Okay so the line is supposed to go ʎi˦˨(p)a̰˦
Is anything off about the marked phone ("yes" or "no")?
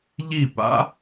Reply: no